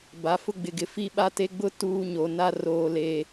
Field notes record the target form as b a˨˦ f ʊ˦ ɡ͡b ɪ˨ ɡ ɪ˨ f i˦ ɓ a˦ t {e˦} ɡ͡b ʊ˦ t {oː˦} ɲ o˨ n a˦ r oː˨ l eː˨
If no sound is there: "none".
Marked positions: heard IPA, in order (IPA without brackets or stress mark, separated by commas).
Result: e˦, uː˦